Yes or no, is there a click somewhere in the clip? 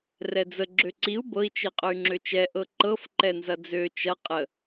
yes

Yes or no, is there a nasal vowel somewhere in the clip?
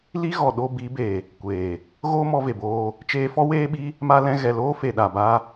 yes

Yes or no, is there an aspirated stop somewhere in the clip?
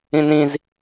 no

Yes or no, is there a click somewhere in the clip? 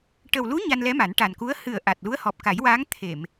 no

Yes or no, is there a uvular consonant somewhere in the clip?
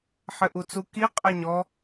yes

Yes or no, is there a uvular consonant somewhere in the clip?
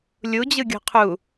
yes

